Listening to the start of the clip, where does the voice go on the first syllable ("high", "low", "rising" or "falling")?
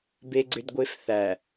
high